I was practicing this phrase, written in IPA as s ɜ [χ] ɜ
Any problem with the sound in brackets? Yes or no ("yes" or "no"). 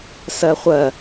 yes